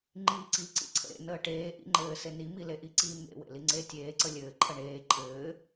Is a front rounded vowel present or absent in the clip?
absent